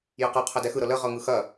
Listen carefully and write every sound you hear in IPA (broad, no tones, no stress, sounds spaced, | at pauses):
j ɤ q ʌ qʰ ɐ d ɛ x ɯ ɾ ɤ l ə ʁ ɤ ŋ ɯ x ɐ